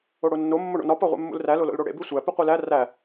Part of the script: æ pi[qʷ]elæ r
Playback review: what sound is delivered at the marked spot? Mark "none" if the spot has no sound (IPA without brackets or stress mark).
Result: qʷ